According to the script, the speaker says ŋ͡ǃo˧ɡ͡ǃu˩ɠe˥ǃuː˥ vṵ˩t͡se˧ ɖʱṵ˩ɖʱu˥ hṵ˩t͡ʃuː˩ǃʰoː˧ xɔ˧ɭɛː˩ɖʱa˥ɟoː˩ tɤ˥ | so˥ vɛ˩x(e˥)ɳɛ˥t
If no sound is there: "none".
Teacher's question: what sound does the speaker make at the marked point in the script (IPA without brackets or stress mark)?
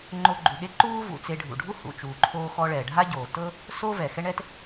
ɛ˥